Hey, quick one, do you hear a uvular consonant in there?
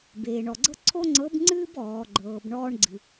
no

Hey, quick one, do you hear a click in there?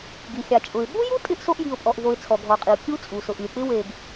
no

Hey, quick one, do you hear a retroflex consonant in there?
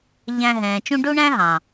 yes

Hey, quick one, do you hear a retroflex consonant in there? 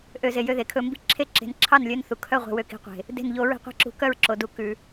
no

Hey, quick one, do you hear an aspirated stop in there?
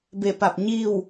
no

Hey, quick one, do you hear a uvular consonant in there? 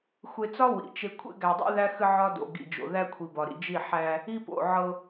no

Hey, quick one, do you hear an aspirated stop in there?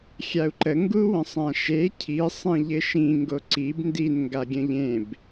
yes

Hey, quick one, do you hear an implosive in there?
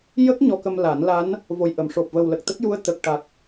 no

